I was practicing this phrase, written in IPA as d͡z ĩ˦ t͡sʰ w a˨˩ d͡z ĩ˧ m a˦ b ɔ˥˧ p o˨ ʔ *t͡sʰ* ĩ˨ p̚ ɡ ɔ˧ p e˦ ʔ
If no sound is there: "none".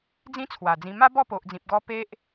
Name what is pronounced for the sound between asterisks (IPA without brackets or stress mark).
d͡z